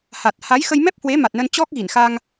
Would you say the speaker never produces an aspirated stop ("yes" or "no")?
yes